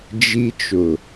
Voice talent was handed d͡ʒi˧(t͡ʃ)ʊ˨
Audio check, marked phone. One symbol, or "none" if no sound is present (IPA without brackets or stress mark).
t͡ʃ